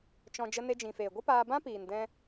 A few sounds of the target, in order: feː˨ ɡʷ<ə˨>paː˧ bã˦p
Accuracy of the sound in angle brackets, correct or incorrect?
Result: incorrect